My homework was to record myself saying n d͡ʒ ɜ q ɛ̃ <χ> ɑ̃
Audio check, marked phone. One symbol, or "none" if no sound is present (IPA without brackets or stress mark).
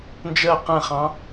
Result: χ